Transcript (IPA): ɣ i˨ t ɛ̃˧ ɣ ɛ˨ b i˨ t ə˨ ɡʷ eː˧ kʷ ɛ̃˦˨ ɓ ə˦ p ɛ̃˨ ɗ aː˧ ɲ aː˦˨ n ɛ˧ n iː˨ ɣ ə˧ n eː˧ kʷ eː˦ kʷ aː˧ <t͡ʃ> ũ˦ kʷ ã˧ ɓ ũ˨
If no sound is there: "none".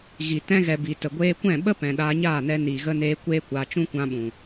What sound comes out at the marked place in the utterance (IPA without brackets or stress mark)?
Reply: t͡ʃ